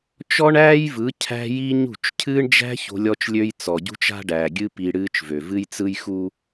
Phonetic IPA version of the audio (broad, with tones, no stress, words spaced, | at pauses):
t͡ʃɔ˦ɳæː˦jvɯ˨˦ cʰæ̤˦ji˦ɲṳ˦˨t͡ʃ cʰɨː˦ɳd͡ʒæ̤˦ ço̤˦lʲɔ˦t͡ʃlʲø˦j t͡sɔ˨ɟṳ˦t͡ʃa̤˦ ɖæː˨ɡʲɨ˦ pi˨ ɽɨː˦t͡ʃvø˨ vɨ˦jt͡sɯ˦jxu˦